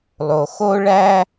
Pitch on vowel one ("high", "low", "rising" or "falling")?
low